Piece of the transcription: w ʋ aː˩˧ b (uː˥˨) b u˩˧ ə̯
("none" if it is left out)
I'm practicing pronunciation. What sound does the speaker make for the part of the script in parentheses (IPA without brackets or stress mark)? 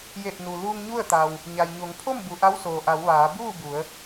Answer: uː˥˨